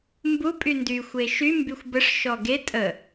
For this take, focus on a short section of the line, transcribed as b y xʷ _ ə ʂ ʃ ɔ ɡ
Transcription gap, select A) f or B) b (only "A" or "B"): B